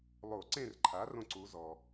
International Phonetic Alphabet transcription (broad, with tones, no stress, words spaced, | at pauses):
lˠo˧˩˧ ǀẽ˥˨rǃʰa˩˥ rõ˥˨ǀu˩˥ zɔ˩